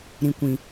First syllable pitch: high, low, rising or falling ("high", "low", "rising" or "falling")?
low